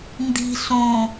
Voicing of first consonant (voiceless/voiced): voiced